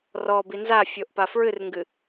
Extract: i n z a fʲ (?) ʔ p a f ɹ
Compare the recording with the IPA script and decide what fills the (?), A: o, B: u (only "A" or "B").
A